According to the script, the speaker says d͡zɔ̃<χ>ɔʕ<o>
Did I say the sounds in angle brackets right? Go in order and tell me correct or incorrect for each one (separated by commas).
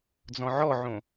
incorrect, incorrect